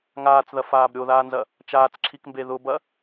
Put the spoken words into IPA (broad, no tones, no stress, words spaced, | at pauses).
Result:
ŋaːt͡sðɐfaːb ɾʲoðaːnzɐ | t͡ʃaːt͡sǁʰikmbe ðʊbɐ